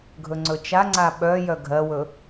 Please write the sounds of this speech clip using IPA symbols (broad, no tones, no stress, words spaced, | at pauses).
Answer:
ɡʱɵŋ͡ǀɵt͡ʃaŋ͡ǀa ɓœ jœɡʱɜwɵ